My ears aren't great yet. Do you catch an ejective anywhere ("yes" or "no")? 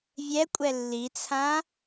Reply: yes